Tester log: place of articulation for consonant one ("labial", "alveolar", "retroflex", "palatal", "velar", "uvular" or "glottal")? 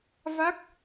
labial